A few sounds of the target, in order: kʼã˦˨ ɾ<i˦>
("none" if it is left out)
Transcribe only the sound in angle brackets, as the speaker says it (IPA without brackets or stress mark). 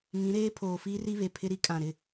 ɪ˦